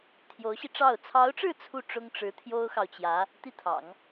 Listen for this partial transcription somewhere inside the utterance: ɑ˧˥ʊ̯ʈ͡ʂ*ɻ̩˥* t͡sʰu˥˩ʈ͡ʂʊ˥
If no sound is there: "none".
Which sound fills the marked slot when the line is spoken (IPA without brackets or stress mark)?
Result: ɻ̩˥˧